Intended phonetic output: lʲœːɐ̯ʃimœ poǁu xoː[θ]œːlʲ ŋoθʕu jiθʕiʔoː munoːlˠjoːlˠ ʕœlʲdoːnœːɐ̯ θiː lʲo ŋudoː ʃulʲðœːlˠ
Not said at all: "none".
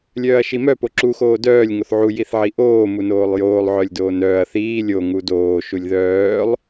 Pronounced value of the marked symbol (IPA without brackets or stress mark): d